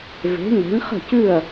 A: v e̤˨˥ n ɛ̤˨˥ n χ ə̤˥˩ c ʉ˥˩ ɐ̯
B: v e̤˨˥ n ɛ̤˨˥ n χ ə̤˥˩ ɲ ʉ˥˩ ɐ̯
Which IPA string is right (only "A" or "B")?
A